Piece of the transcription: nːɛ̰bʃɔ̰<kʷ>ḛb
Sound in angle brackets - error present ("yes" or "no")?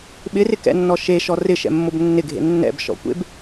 no